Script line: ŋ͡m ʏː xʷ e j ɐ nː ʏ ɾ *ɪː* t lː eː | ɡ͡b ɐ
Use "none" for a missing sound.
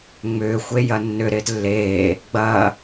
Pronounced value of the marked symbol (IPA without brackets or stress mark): ɪː